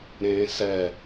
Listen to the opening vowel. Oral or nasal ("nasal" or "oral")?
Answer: nasal